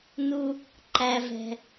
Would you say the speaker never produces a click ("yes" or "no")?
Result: no